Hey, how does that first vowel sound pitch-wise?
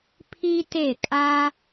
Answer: high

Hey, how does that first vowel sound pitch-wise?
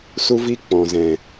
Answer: high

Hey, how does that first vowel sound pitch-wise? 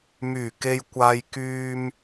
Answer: low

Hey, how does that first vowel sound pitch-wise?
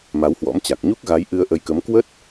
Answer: rising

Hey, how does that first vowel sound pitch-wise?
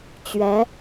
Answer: rising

